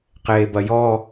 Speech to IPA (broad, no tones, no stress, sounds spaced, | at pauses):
q eː b ɐ j ɔ